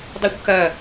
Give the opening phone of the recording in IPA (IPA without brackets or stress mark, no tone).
dˤ